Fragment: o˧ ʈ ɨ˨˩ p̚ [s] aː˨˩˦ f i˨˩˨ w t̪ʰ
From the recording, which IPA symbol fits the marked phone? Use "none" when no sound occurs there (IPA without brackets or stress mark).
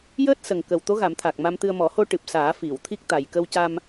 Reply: s